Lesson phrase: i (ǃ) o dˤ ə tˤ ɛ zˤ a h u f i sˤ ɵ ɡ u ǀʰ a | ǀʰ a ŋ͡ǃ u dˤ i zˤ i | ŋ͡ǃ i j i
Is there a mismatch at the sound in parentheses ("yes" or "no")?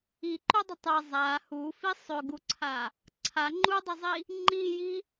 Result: no